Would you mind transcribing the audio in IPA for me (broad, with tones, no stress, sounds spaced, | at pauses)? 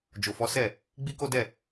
d͡ʒ o˨ f ɔ˨˦ s ɛ˦˨ | ɡ͡b i˦ k o˦ d ɛ˦˨